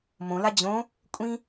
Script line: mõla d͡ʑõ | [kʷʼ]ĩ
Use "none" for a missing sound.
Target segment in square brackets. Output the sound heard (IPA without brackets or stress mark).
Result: kʷʼ